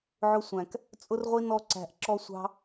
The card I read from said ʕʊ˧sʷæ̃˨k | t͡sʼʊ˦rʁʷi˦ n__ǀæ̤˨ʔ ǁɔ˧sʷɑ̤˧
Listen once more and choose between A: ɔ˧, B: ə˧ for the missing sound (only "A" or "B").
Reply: A